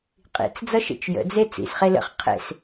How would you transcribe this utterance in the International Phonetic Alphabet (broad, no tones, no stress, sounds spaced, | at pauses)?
qʼ ḭ t͡s d͡z ʌ ʃ ḛ t͡ʃ j ə̰ d͡z e t͡s ḭ s χ e l ə̰ χ qʰ ḛ s